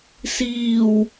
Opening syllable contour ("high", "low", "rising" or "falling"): low